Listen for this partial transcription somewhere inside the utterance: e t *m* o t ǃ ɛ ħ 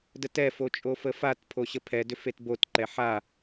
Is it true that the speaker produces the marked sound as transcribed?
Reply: no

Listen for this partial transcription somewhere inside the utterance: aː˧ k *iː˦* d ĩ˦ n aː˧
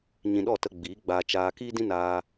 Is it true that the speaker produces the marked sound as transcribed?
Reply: yes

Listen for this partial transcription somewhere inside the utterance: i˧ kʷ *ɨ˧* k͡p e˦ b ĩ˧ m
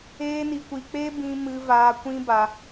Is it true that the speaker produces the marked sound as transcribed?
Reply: no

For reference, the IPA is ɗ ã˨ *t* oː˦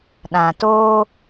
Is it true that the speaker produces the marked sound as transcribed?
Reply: yes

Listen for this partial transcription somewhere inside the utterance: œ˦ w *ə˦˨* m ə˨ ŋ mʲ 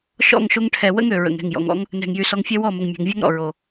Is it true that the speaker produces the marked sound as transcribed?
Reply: no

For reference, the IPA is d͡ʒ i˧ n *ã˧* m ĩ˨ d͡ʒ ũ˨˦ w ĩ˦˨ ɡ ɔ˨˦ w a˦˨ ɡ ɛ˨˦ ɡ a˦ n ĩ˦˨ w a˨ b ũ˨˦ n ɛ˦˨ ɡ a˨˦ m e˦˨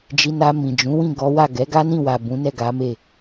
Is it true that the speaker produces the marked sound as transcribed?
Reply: no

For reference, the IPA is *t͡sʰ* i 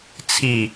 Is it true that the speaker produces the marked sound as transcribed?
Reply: yes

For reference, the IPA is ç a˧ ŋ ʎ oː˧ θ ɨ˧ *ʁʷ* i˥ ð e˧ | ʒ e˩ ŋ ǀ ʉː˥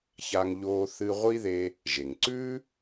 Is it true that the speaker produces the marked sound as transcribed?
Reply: yes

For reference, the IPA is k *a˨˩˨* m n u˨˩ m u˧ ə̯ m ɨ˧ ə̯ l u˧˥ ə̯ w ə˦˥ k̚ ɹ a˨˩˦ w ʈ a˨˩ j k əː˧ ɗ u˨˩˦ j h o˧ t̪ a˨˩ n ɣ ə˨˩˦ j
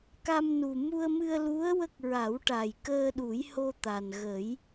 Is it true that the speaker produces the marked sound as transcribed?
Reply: no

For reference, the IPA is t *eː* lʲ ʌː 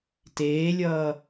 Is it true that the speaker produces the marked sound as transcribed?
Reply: yes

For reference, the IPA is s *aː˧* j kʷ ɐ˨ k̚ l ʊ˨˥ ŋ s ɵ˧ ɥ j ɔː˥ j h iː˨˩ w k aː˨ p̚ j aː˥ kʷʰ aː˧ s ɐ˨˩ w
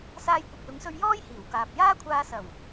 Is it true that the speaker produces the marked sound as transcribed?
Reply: yes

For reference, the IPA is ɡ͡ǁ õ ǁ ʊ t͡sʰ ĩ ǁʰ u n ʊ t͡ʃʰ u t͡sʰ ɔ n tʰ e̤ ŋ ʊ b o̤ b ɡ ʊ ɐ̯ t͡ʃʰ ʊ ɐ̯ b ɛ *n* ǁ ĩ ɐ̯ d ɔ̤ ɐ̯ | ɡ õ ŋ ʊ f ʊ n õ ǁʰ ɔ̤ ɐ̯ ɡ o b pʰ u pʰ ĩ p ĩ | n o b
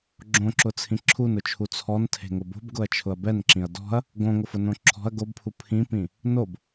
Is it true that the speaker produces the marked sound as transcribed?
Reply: yes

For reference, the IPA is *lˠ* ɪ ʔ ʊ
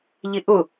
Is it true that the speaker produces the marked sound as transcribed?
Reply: no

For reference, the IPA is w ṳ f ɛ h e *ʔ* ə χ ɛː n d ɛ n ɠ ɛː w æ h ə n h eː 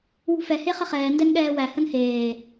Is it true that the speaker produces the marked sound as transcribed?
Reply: no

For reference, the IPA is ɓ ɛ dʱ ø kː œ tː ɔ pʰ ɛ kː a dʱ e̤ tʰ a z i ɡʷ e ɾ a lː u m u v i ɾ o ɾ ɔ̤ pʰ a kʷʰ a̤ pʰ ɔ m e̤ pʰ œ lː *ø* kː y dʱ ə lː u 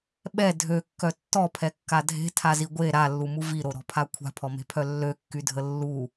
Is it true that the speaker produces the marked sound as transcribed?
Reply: yes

